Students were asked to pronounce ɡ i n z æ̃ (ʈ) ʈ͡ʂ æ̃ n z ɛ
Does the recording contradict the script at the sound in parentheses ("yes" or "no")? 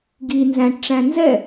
no